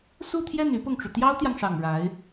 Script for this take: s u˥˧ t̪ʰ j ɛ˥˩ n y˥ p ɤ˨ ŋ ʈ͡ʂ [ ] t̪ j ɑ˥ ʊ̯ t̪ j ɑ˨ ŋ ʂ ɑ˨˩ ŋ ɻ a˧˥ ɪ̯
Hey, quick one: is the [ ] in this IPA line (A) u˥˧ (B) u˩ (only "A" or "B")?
B